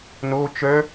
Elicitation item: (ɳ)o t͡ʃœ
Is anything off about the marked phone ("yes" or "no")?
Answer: yes